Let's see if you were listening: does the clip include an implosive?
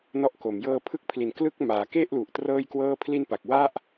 no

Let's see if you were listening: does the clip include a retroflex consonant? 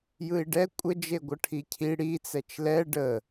yes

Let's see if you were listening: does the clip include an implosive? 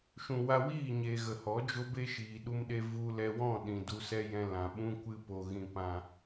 yes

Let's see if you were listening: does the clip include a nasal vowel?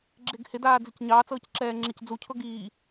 no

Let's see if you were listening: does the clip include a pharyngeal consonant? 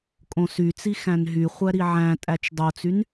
yes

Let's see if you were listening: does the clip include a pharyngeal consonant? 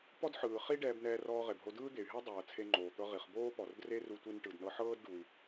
yes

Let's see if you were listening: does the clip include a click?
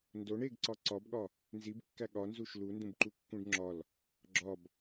yes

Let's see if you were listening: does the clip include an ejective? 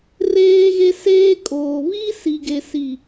yes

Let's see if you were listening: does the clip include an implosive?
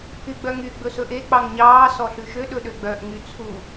yes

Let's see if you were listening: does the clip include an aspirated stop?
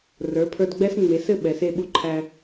yes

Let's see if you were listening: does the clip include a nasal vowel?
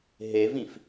yes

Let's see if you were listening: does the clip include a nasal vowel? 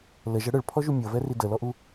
no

